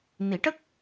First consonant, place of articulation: alveolar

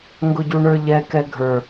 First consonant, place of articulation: velar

